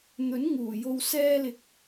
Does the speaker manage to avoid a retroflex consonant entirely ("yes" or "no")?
yes